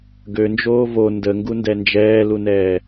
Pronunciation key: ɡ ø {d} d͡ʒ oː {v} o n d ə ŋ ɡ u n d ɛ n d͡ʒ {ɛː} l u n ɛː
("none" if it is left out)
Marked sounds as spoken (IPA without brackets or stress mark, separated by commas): n, v, ɛː